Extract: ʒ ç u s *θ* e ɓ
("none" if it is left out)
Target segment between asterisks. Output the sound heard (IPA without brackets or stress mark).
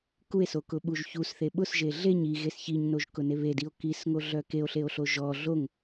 θ